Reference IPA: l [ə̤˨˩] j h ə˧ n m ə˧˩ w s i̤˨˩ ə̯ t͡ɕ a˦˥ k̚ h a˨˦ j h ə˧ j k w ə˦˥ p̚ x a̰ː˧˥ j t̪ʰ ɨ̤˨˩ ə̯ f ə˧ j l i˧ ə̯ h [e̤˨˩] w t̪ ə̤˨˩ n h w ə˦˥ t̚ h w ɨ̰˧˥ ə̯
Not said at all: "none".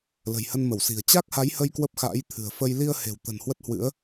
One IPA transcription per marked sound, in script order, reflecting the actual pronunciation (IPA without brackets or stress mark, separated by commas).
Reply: ə̤˨˩, e̤˨˩